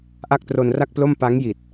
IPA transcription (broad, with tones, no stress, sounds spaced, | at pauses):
ʔ a˥˩ k̚ t r o˧ n r a˥˩ k̚ p l o˥˩ m p a˦˥ ŋ j i˨˩ t̚